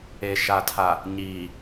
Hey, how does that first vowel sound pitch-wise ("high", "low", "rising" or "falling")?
low